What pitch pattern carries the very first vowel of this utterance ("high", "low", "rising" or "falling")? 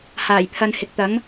low